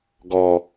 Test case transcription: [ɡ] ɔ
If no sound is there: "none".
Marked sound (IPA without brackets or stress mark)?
ɡ